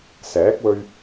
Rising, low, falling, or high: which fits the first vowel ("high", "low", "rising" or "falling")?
rising